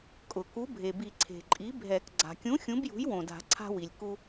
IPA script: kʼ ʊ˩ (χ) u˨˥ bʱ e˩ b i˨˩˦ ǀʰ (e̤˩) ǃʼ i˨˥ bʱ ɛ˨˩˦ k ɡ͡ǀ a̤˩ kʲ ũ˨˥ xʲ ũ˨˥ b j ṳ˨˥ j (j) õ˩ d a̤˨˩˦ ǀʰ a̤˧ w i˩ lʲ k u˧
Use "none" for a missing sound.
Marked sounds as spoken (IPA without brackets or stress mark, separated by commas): k, e̤˩, w